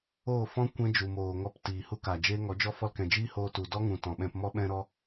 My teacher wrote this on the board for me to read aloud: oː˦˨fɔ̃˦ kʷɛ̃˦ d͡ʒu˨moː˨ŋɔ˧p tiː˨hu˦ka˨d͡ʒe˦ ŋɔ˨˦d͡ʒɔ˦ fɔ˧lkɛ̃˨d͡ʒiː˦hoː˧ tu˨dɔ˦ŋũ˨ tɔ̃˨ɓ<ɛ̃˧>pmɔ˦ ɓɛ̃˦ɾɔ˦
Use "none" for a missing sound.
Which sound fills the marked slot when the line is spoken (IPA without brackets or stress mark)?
ɛ̃˧